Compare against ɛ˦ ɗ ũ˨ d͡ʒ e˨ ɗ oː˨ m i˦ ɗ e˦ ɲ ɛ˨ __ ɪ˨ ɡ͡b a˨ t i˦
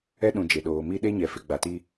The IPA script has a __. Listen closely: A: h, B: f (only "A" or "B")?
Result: B